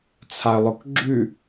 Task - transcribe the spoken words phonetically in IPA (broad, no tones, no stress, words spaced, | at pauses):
t͡sʰaə̯lˠʊkɡ͡ǁʉ